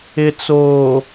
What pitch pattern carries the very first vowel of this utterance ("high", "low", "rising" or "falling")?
low